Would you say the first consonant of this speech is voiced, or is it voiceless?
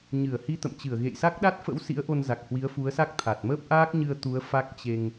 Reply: voiced